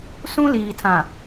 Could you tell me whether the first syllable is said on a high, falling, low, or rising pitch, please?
high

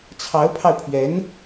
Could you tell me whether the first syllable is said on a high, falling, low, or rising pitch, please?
rising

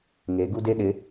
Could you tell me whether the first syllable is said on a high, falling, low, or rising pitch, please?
rising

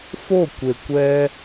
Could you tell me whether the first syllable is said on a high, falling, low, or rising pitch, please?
falling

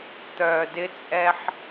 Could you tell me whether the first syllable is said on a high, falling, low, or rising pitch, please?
low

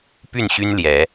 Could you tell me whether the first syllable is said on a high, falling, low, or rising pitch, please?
falling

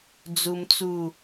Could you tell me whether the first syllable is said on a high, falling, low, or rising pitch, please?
high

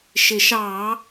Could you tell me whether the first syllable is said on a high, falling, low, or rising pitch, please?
low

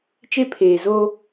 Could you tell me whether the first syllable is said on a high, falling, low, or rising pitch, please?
high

